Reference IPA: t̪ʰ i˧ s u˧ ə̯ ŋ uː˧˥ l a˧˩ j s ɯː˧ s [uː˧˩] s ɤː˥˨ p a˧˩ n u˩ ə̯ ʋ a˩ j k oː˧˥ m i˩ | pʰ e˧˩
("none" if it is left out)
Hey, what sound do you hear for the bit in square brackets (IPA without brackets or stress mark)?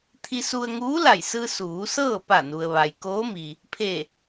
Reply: uː˩˧